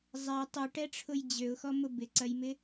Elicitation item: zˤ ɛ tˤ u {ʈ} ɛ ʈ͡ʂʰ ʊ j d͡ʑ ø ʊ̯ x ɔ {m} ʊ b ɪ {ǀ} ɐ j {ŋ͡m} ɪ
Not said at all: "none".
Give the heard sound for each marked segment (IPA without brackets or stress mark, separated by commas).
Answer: ʈ, m, ǀ, m